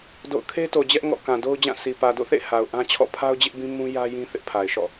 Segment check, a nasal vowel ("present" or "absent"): present